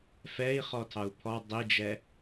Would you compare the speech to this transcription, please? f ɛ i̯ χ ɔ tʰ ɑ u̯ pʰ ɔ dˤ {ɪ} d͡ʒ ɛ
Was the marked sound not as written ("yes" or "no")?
yes